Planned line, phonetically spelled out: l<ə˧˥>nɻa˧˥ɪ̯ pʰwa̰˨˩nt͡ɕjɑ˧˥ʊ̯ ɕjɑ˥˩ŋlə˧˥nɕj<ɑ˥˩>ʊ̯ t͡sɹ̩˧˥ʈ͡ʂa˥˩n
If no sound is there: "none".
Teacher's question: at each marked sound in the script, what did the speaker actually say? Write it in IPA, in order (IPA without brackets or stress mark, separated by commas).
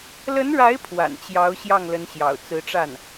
ə˧˥, ɑ̰˨˩